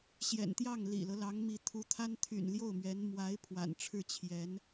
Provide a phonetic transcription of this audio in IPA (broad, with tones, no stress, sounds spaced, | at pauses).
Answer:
ɕ j ɛ̰˨˩ n t̪ j ɑ˥˩ ŋ l ḭ˨˩ l ɤ˦ l ɑ˧˥ ŋ m i˧˥ t̪ʰ u˧˥ t̪ʰ a˥ n t̪ʰ y̰˨˩ n l j o˥˩ ʊ̯ m ɥ ɛ˧˥ n m w a˧˥ ɪ̯ pʰ w a̰˨˩ n ʈ͡ʂʰ ɻ̩˥˩ t͡ɕʰ j ɛ˧˥ n